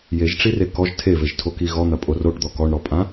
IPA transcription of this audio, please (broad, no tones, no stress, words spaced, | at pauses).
jeʒʈ͡ʂi rekɔʒ tʰeveʒ tʰoki ɣɔn̪ɐ pʼoroʈd̪ɔ kɔɳɾɔpʼã